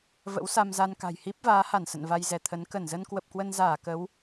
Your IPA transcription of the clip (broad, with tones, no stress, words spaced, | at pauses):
və̰˧˥wsa˧mza˧nka̤˨˩j hi˦˥p̚vaː˨˦ha˧˩n sə̰˧˨nva˧jzɛ˧˩t̪ʰə˨˦n kə˧˩nzə˧n kwə˨˩p̚kwə˧nzaː˧˩ kə˨˦w